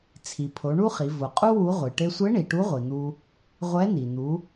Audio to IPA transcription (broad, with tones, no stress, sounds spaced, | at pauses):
t͡sʰ i˩ pʰ o˩˧ ɳ u˥ χ i˩˧ v ʊ˩ qʼ u˥ w u˧˥ ʁʷ i˩ ʈ e˧ sʷ e˧˥ ɳ i˩ ʈ u˧˥ ʁʷ i˩ n̪ u˧ | ʁʷ ɛ˧˥ n̪ i˩ n̪ u˩˧